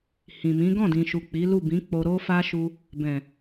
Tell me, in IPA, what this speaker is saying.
h ĩ˨ m ĩ˨˦ ɡ ɔ̃˦˨ d ĩ˨ ʃ u˨ k͡p i˨˦ l u˦˨ b ĩ˨˦ k͡p o˧ ɾ o˦ f a˦ ʃ u˧ | b ɛ̃˨

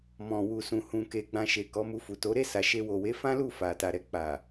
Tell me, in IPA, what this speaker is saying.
m ɔ̃˨ w u˨ s ũ˨ h ũ˨ k e˨ ɡ͡b ã˨ ʃ e˨ k ɔ˨˦ m u˧ f u˨ t o˨˦ ɾ e˦˨ s a˨ ʃ e˧ w o˨ w e˨˦ f ã˦ l u˦˨ f a˨ t a˨ ɾ ɛ˨ k͡p a˨

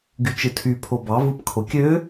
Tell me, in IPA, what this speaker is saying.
ɡ y t͡ʃ ɯ tʰ y pʰ o b ɑ v ɯ p kʰ o kʲ ø

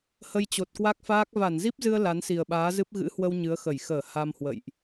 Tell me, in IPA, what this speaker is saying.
h ə˧ j t͡ɕ o˨˩ t̚ k w a˦˥ k̚ f aː˦˥ k̚ v a˧˩ n z i˦˥ p̚ z ɨ˧ ə̯ l a˨˦ n s i˨˩ ə̯ ɓ aː˨˦ z ɨ˦˥ p̚ ɣ ɨ̰˧˥ h w ə˧ w ɲ ɨ˨˦ ə̯ x ə˧˩ j x əː˧˩ h a˧ m h w ə̰˧˨ j ʔ

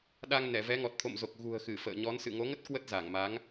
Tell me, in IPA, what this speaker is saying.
ɗ a˧ ŋ n ɛ˧˩ v ɛ˨˦ ŋ ɔ˨˩ t̚ t̪ʰ o̰˧˨ m z o˨˩ k̚ ɣ ṳ˨˩ ə̯ x ɨ˧˩ f ə̰ː˧˨ ɲ ɔ˨˦ n s ɨ̰˧˨ ŋ o˨˦ ŋ ə˦˥ t̚ k w ə˦˥ t̚ z a˧˩ ŋ m a˨˦ ŋ

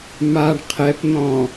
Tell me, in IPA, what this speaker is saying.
m a ɳ qʰ ɛ p n̪ ɔ̃

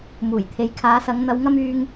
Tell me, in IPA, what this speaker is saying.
m uː˨˩ j t̪ʰ e˨ j kʰ aː˨˧ s ɐ˨˧ ŋ n̪ ɐ˨ w ŋ ɐ˧ m yː˨ ŋ

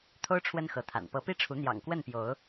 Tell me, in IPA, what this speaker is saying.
t̪ʰ o˦ ʊ̯ ʈ͡ʂʰ w ə˦ n x ɤ˨˦ t̪ʰ a̰˨˩ n p ɤ˨˦ p i˦ ʈ͡ʂʰ u˨˦ n̪ j ɑ̰˨˩ ŋ k w ə˥˨ n p j o˨˦ ʊ̯

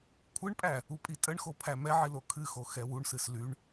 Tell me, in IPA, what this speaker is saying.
kʷʰ ɨ ɳ pʼ æ | u pʼ i tʼ ə ɳ x o pʰ æ m ɛ ʕ i l o kʰ ɨ x o x ɛ w u ɳ s ɨ s l y ɳ

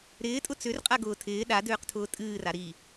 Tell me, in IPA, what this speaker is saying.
ɾ ɪː tʼ ʊ t͡s ʏ r qʼ a ɡ ʊː tʰ ɪː ɗ a d ʏː q tʰ ʊː tʼ ɨː r a ɾ i

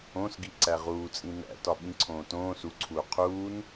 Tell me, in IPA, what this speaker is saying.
õ s ɡ i ǀ æ ʁ uː t͡sʼ ĩ n æ̰ t ɒ ɓ ĩ ǀʰ õː t õː s u ǀʰ uː qʰ uː n

